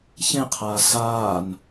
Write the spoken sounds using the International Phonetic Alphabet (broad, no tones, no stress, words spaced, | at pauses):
çẽqʰaː saːn